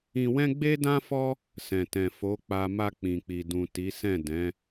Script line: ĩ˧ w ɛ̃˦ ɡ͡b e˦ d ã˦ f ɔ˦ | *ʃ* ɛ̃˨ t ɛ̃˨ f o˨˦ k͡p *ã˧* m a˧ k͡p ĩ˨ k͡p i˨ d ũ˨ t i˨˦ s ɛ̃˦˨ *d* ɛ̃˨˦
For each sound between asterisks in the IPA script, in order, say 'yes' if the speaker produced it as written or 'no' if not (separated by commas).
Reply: no, no, yes